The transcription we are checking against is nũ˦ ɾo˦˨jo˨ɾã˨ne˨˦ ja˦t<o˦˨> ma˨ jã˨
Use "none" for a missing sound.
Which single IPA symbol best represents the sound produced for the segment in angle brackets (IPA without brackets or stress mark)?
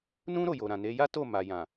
o˦˨